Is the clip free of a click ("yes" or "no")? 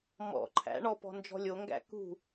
no